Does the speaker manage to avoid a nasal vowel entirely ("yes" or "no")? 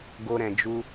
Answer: no